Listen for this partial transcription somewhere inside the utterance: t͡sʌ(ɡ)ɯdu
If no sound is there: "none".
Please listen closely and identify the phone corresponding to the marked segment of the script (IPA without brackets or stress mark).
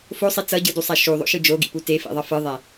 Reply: ɟ